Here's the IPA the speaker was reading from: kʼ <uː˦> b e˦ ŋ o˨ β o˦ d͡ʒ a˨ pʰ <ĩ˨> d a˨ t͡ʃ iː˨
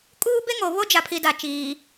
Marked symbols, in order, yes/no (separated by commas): yes, no